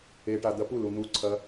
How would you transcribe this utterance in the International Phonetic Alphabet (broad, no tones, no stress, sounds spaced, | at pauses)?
e ʈ a d̪ ɐ p u l u n̪ u ǀʰ ɐ